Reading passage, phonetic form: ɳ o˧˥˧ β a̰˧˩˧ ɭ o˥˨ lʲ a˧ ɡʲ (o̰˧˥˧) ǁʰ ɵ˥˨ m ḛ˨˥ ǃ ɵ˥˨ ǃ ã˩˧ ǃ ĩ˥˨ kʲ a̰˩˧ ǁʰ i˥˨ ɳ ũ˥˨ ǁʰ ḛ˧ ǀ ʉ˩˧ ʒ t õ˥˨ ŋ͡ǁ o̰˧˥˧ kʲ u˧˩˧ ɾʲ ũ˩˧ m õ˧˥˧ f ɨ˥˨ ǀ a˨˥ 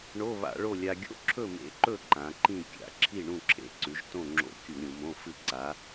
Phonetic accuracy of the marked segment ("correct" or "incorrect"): correct